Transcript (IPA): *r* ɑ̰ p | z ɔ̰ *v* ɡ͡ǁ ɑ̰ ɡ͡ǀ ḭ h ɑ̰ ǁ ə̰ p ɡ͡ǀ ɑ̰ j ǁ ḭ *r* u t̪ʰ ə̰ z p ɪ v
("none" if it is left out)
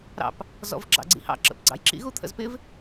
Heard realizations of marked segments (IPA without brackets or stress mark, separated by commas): ɾ, v, ɣ